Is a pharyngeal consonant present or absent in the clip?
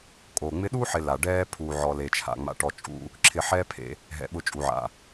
present